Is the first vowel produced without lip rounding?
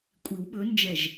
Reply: yes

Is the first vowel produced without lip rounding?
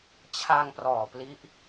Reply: yes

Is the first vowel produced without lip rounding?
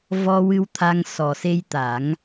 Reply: no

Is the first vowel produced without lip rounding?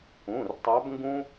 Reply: no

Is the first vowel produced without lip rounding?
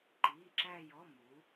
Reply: yes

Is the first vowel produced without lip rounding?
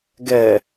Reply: yes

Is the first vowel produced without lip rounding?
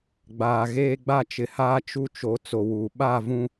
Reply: yes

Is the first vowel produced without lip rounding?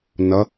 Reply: yes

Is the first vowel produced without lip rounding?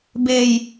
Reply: yes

